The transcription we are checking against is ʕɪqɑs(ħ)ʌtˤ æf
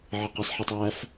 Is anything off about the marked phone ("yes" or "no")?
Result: no